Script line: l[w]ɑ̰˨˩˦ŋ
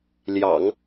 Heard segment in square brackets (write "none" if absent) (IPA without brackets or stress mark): j